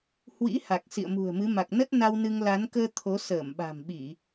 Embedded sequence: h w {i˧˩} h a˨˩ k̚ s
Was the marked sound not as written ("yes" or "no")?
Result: yes